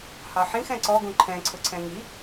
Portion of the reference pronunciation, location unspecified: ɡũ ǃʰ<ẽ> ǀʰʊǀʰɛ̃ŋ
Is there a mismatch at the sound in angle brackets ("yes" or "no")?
yes